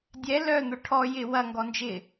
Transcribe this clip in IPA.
dʲ ɛ l œ n̪ ʊ ʈʰ ɔ j ɪ w ɐ ŋ ɡ ɔ n d͡ʒ ɪ

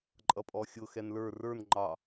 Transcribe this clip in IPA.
ǃʼ ʌ pʼ ɔ xʲ ʊ x ɛ n l ə˞ r ə˞ n ŋ͡ǃ ɑ

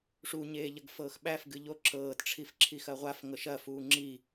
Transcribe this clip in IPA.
ʂ u ɲ eː ʎ ɐ ɡ f ɤː x ɓ æ f ɡ ɨ ʎ o ǁ ɤː t ʈ͡ʂʰ i f ǁʰ i x ɐ ʁʷ a f ŋ ɤ ʃ ɐ f uː ŋ͡ǁ i

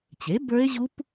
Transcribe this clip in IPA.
t͡ɕ e˩˥ b ə˞˦˥ e̯ ʑ u˦˥ p

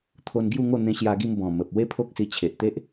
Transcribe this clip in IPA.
t̪ʰ o˧ n ɡ j u˥˧ ŋ o˥˧ n̪ ẽ˧ ɕ j a˧ ɡ i˧ m b ɔ̃˨˩ m ə˨ p̚ w e˦ pʰ o˦ k̚ s i˧ t͡ɕʰ e˨ ʔ t̪ e˦ ʔ

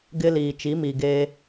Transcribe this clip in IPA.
ɡ ɪ˦ l iː˨ t͡ʃ i˨˦ m iː˨ ɡ eː˦

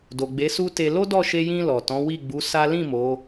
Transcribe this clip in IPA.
d o˨ ɡ͡b e˨˦ s u˦ t e˧ l o˦ d ɔ˦˨ ʃ e˧ j ĩ˧ l ɔ˨ t ɔ̃˨˦ w i˦˨ ɡ͡b u˨˦ s a˦ l ĩ˦˨ m o˨˦

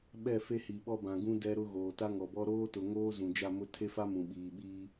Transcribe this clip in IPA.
ɓ ɛ˦˨ f e˦ h i˨ ɓ ɔ˦ b ã˨ ɡ ũ˦ d ɛ˦ ɾ ʊ˦ ɣ oː˨ t a˦ ŋ ɔ˨ b ɔ˦ ɾ oː˦ t ʊ˨ ŋ oː˦ z ũ˨ d͡ʒ a˦˨ m ʊ˦ tʰ e˦ f a˦ m ũ˨ ɓ iː˨ ɓ iː˦

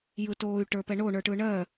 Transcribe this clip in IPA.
j ɯ t oː y̯ ʈ ə˞ p ɛ ɳ o ɳ ə˞ ʈ ɯ ɳ ɜ

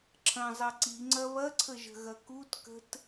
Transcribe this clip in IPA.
ǁʰ ɐ̃ zˤ ɐ ǀ i ŋ͡ǀ ɐ β ɐ ǀʰ ə ʒ ə̤ ɣ ɐ k u t k ə̤ t

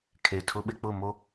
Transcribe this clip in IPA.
kʰ e˨ tʰ ʊ˦ ɓ ɪ˦ k͡p ʊ˦˨ m o˦

